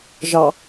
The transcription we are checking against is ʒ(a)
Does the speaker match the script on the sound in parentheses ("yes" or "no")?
no